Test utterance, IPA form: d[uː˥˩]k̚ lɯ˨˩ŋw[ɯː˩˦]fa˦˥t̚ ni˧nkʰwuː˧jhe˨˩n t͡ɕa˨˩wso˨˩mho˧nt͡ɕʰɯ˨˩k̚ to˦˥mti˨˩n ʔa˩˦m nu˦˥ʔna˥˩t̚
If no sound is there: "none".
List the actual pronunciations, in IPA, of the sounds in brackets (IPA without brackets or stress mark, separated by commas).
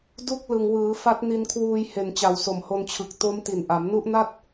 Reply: u˥˩, ɯː˩˦